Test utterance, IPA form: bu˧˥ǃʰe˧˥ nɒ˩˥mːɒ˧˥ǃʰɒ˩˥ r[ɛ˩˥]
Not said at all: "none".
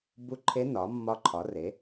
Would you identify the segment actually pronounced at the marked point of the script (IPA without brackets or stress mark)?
e˩˥